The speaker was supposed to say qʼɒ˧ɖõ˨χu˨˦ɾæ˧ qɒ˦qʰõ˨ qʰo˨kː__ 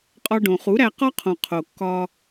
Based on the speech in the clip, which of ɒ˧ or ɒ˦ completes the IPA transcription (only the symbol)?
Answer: ɒ˧